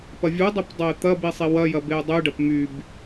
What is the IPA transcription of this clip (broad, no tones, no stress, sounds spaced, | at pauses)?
p ɐ vʲ u dˤ e p dˤ ɐ ɪ̯ t̪ ɐ b i sˤ i w ɐ j ɐ b e ʊ̯ dˤ y ɖ ɐ p m y b